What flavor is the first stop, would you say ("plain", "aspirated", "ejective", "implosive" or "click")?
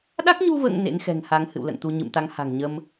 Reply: implosive